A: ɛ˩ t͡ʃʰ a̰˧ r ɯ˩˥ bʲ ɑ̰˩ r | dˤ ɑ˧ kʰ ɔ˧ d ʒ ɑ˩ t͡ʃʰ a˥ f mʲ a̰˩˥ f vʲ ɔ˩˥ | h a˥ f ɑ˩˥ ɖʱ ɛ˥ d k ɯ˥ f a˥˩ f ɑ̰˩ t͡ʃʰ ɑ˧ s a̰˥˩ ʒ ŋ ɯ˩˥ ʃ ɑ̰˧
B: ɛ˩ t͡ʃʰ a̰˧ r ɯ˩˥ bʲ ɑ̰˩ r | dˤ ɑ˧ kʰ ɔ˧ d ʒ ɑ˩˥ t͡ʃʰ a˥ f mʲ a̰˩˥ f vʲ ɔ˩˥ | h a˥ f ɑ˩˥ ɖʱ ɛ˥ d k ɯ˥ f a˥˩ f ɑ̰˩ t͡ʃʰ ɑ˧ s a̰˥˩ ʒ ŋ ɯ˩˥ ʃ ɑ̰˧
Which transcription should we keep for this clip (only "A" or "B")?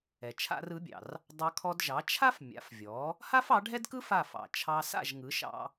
B